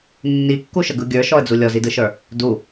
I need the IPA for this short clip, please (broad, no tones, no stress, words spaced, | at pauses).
nːikːuʃəɡɯ ɡʲə˞ʃɔə̯d͡zu lʲɔzidɯʃə˞ | du